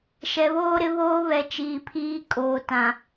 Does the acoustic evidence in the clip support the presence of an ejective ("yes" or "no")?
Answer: yes